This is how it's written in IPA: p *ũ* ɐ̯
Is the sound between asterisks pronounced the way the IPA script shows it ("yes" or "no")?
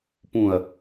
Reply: yes